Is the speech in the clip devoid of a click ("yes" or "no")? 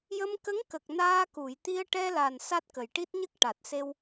yes